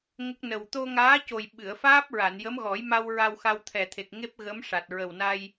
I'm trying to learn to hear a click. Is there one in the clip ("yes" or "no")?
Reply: no